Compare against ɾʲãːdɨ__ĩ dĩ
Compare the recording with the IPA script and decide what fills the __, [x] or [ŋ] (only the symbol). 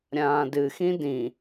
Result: x